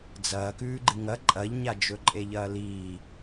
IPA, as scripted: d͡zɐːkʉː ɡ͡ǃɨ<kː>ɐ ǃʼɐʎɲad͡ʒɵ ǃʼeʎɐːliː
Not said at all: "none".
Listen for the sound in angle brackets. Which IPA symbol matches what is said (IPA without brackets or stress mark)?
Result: ŋ